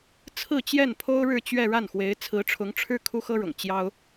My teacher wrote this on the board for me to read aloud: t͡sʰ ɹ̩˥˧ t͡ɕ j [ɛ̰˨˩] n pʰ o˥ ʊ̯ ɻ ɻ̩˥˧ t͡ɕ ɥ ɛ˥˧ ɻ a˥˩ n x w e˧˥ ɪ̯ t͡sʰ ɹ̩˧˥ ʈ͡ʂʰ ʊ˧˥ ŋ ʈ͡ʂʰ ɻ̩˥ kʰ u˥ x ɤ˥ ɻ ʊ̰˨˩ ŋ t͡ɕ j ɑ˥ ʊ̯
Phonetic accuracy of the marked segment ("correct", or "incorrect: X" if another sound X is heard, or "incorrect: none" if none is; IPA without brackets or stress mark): incorrect: ɛ˥˩